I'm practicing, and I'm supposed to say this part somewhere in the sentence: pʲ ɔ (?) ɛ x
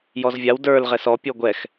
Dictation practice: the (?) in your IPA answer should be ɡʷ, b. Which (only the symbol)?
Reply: ɡʷ